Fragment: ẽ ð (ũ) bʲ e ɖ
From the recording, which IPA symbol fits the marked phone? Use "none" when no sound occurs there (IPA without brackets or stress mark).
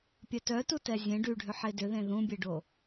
ũ